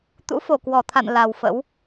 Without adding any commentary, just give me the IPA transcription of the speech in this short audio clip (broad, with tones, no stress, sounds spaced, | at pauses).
t̪ ṵ˧˥ f o˧˩ k w ɔ˧˩ t̪ʰ a̰˧˨ n l a˨˩ w f ə̰˧˥ w